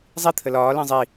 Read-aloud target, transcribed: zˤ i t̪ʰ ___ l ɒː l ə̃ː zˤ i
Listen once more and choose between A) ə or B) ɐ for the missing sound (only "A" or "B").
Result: A